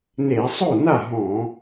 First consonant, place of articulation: alveolar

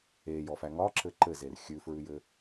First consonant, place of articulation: palatal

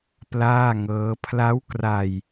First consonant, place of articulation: labial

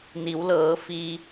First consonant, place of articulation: alveolar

